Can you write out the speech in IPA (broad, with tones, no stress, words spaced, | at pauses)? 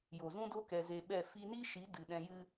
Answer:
jo˨zũ˦do˦ kɛ˧ze˧ɓɛ˦˨ fi˧ni˦ʃi˨˦ dɨ˨ɗɛ̃˧jɨ˦